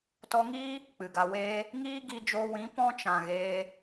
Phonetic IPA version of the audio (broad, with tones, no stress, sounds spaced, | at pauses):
t ɔ˧ ŋ iː˦ | k͡p ɨ˨ ɡ a˧ w eː˧ | ŋ iː˦ ɡ i˧ d͡ʒ oː˧ w ĩ˨˦ p ɔ̃˦ t͡ʃ ã˨ ɣ eː˧